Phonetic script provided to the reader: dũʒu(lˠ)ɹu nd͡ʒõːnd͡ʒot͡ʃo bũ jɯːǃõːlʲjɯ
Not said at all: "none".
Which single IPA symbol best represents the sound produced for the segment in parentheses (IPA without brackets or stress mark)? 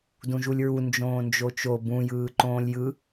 lʲ